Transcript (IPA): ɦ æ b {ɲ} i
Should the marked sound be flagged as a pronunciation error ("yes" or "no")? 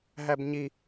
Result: no